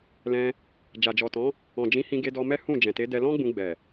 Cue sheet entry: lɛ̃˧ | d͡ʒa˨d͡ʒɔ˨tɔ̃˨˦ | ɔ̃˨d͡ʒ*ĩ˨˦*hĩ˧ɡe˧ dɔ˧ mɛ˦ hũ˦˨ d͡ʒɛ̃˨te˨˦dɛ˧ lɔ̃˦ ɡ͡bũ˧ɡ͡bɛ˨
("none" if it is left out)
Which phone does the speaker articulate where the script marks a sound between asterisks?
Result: ĩ˨˦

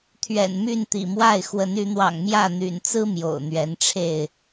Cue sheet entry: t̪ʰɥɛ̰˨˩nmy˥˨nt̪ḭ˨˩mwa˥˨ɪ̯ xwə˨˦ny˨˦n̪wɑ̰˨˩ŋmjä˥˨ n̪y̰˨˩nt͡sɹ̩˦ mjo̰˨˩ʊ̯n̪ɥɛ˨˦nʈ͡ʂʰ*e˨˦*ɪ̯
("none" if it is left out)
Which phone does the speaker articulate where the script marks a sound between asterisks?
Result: e˥˨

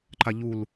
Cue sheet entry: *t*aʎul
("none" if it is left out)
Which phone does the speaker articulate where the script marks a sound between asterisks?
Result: ǃ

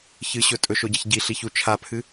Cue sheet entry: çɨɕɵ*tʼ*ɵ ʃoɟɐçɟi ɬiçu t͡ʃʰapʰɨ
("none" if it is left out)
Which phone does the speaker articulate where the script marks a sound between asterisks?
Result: tʼ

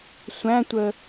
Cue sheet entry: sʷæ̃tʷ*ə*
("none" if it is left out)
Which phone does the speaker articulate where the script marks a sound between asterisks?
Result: ə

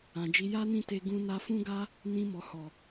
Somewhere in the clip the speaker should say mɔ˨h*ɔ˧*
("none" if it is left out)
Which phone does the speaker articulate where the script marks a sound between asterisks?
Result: ɔ˨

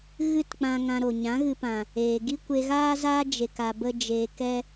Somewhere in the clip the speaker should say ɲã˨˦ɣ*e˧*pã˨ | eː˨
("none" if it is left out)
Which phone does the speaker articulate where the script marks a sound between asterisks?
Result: ɨ˧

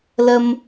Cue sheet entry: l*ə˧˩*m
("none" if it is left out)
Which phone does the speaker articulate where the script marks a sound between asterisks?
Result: ə˧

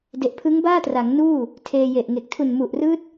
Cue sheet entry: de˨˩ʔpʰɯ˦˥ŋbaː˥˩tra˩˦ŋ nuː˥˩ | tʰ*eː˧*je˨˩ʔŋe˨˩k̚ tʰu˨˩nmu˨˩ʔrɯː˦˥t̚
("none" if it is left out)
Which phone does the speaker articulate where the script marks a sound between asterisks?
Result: eː˧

